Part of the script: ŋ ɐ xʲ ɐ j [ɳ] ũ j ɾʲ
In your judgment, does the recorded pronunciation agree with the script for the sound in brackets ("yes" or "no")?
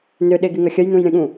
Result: no